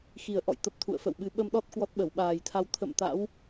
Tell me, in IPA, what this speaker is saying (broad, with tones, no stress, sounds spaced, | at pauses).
x i˨˩ ə̯ ʔ ɔ̰˧˨ j t̪ ə˨˩ p̚ t̪ʰ ṵ˧˨ ə̯ f ə̰˧˨ w ɓ ɨ˨˦ ɓ ə˧ m ɗ ɔ˦˥ t̚ k w ɔ˦˥ t̚ ɓ ə˧˩ w ɓ aː˨˩ j t̪ʰ a˧ w t̪ʰ ə̰˧˨ m t̪ a̰˧˥ w